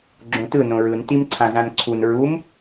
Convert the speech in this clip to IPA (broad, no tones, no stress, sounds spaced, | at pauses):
ɡ͡ǁ õ t ɯ n õ ɹ ɯ n t i m ǀʰ ã z ã n ǀʰ u n ɹ u m